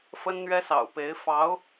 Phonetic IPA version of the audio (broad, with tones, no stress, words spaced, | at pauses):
fə˥nn̪ɥɛ˥sɑ̰˨˩ʊ̯ pe˧˥ɪ̯ fɑ˧˥ʊ̯